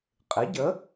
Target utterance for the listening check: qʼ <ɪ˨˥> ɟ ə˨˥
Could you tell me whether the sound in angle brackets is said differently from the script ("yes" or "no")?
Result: no